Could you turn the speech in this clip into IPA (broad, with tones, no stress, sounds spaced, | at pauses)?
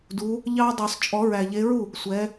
d u˨˦ | ʎ ɑ˦ dˤ ʉ˨˩˦ sˤ t͡ʃʼ ɔ˨˩˦ ɹ æ˨˩ ʎ e˨˦ ɹ u˥˩ | sʷ ɛ˨˦